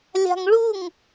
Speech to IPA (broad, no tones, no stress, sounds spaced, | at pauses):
lʲ a̤ ŋ ɭ u ŋ